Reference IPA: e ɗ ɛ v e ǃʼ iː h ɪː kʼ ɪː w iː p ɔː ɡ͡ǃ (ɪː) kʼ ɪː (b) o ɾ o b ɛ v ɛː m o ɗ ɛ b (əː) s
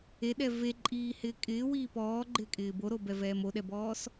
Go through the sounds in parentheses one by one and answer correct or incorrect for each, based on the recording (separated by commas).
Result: correct, correct, incorrect